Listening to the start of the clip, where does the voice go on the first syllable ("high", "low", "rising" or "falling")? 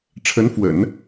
rising